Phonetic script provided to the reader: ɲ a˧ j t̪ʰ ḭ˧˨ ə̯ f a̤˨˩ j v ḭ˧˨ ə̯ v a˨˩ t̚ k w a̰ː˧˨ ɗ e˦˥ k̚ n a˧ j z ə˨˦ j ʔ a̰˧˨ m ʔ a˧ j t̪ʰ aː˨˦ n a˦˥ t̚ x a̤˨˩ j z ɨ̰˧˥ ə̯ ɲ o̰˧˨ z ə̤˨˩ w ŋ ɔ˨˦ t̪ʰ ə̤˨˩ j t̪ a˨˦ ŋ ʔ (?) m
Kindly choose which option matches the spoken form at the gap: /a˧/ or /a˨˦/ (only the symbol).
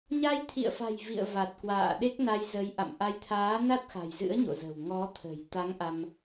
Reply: a˧